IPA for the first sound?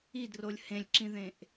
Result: i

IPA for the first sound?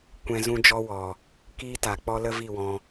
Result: kʷ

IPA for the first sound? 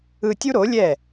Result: ɯ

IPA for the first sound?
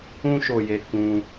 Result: ũ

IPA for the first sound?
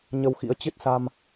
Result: ɲ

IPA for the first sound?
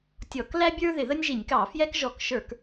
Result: tʲ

